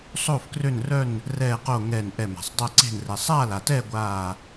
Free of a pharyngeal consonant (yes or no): yes